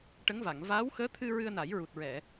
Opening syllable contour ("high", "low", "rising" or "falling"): rising